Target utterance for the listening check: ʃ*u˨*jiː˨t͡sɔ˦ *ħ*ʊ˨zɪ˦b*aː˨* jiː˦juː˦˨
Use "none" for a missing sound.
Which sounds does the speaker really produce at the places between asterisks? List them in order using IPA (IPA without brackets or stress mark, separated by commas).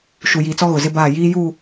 u˨, ɣ, aː˦˨